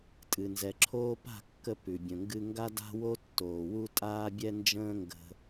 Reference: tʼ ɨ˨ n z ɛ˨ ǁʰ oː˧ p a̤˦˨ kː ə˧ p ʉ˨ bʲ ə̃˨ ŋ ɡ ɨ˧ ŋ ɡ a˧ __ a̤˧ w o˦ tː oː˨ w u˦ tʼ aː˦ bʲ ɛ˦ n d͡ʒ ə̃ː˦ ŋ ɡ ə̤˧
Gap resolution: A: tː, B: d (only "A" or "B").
B